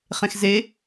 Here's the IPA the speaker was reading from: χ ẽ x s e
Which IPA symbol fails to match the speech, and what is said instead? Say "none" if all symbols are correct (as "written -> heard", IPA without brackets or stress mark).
s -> z